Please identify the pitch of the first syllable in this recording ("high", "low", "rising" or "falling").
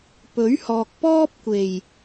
rising